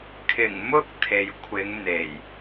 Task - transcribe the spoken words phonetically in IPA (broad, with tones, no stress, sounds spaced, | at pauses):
kʰ ɪ˨˩ ŋ m ʊ˥ k̚ t̪ʰ e˨ j kʷʰ ɪ˨˧ ŋ n̪ e˨˩ j